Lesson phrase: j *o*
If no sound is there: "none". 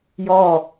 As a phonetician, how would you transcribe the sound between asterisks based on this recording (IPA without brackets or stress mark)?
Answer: ɔ